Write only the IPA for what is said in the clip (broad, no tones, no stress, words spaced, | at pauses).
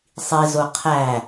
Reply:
sˤizo qʰæ